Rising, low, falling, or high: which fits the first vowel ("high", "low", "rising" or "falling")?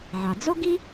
low